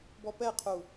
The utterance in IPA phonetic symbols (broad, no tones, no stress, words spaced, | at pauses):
bɔpɛqʰu